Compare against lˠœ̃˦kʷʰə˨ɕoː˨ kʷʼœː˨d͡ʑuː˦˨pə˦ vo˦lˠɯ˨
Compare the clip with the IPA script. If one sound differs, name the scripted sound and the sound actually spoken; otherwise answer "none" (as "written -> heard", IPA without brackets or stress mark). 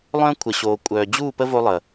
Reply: ɯ˨ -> ə˨